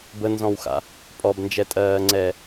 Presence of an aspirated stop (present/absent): absent